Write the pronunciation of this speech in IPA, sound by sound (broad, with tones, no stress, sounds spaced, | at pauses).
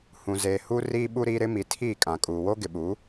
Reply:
h ũ˨ z eː˨ h u˦ r iː˦ ɓ u˦ ɾ iː˦ ɾ ɪ˦ m i˨ tʰ i˦˨ kʼ ã˨ kʼ uː˨ w oː˦ ɡ ɪ˨ ɓ u˨˦